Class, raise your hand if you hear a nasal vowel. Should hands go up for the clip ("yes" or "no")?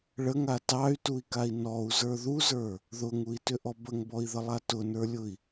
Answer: no